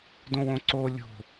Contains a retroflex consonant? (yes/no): no